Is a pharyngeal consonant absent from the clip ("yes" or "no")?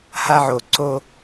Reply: no